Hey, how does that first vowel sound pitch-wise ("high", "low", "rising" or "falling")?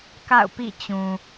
falling